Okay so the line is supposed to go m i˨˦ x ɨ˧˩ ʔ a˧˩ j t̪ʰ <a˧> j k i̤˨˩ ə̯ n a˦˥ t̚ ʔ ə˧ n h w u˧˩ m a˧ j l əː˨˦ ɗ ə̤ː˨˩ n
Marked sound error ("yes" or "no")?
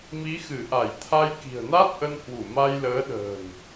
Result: no